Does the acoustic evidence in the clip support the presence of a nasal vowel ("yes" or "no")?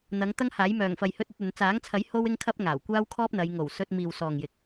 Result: no